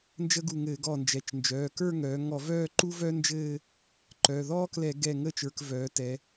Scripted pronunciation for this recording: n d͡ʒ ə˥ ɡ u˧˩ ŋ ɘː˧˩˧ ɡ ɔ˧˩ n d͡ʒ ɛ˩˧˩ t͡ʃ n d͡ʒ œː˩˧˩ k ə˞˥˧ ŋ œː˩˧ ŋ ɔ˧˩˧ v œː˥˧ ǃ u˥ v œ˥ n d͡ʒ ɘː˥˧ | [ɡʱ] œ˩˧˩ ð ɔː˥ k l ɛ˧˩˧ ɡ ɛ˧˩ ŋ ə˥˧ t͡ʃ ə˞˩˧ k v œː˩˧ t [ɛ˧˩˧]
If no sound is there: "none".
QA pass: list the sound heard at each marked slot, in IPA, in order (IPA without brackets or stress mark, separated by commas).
ǃ, ɛ˩˧